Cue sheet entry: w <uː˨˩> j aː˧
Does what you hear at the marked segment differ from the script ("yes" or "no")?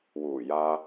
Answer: no